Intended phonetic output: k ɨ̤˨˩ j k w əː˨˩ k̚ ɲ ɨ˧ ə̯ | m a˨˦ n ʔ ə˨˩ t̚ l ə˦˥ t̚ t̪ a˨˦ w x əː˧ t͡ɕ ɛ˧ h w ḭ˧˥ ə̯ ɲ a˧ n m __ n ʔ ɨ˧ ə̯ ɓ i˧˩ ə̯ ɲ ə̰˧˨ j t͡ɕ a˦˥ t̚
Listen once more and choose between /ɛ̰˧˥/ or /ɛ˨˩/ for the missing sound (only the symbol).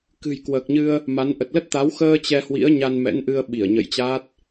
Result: ɛ̰˧˥